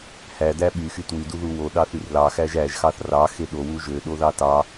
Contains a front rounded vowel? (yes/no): yes